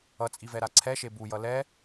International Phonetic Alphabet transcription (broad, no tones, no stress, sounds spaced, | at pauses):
ʌ t͡sʼ i v ɛ ɾ a ǀʰ ɛ ʃ e b u j ʌ l ɛ